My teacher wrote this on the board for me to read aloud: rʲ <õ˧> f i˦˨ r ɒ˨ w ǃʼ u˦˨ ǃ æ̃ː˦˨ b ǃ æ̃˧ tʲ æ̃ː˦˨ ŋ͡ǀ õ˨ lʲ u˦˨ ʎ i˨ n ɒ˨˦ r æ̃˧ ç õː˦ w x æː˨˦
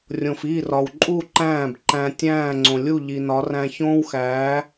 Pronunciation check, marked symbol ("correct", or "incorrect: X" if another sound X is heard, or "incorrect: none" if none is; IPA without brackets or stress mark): incorrect: õ˨